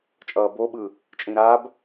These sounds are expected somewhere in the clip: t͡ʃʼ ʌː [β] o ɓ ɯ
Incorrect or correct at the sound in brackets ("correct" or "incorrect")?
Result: incorrect